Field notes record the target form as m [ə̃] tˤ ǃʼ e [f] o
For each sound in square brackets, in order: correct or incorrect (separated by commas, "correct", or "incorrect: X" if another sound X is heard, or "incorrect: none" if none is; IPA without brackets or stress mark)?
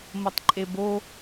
incorrect: ə, incorrect: b